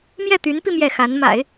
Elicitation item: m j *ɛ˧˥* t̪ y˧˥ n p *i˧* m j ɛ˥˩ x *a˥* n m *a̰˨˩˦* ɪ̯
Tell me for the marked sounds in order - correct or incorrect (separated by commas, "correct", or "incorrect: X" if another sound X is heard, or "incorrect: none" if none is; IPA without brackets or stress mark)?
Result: incorrect: ɛ˥˩, correct, incorrect: a˧˥, correct